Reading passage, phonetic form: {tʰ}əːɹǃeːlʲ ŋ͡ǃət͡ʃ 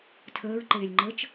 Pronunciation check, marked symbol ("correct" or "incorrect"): correct